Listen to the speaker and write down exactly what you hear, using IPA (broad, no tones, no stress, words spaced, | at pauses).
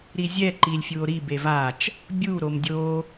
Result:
ɾizʲɛ ǃilʲfʲuo̯ɾi bevat͡ʃ | bʲu ɾomdʲo